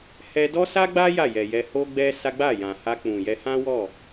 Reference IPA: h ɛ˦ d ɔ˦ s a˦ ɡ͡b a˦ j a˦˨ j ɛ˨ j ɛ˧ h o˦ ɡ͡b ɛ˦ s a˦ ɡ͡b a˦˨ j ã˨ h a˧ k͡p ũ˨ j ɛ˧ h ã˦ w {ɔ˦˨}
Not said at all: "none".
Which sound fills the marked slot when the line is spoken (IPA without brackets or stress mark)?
ɔ˦˨